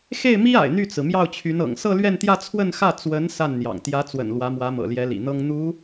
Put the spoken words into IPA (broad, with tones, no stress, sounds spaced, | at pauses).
x e˥˩ ɪ̯ m i˥ a̰˨˩ ɪ̯ n̪ y˥˩ t͡s ɹ̩˩ m j ɑ˥˩ ʊ̯ t͡ɕʰ y˧˥ n ɤ̰˨˩ ŋ s ɤ˥˧ l ɥ ɛ˥˧ n t̪ j ä˥˧ t͡sʰ w ə˥˧ n x ä˥˩ t͡s w ə˧˥ n s a˥˩ n n̪ j ɑ̰˨˩ ŋ t̪ j ä˧˥ t͡s w ə̰˨˩ n l w ä˧˥ m w ä˧˥ m ɤ̰˨˩ l j ɛ˧˥ l ḭ˨˩ n̪ ɤ˥ ŋ n̪ u˧˥